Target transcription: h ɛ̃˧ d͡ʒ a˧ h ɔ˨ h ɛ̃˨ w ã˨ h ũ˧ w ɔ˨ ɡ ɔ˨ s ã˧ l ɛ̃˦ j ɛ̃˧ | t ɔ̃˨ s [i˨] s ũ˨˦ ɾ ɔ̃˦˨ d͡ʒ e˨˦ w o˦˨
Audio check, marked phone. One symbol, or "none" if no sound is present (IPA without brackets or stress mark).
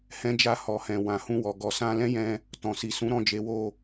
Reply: i˨